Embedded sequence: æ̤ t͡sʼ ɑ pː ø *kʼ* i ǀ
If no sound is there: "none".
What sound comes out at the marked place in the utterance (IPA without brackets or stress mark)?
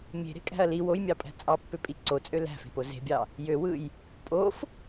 pʼ